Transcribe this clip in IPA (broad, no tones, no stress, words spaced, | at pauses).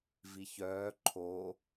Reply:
viçœː ǃʰo